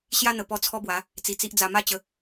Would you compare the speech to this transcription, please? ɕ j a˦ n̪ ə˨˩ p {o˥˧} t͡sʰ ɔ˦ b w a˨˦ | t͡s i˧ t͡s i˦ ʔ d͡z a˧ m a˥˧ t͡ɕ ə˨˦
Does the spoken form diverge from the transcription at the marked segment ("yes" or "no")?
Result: yes